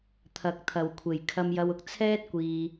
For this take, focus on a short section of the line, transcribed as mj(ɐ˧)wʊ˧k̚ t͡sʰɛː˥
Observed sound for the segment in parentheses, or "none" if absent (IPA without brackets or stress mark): ɐ˧